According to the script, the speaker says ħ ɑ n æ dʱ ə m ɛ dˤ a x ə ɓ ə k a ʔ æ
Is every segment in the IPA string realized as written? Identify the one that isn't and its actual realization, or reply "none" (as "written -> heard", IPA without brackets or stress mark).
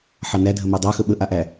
k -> ʔ